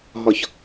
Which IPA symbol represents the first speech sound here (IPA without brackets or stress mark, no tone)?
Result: ɦ